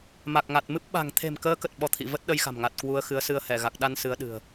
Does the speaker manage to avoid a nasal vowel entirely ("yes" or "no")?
yes